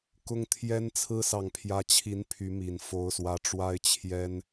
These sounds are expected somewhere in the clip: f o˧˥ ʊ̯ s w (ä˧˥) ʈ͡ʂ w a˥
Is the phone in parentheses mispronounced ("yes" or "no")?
no